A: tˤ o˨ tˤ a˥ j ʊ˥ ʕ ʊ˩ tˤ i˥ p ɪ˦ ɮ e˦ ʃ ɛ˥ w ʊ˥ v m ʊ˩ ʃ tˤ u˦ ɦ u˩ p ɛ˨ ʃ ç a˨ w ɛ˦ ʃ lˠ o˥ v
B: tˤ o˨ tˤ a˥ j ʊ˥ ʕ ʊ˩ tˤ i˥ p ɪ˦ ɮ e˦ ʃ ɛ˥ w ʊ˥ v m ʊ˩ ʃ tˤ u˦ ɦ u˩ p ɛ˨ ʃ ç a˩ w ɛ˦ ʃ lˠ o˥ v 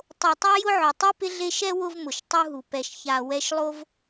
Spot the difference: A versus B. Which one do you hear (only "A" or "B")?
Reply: A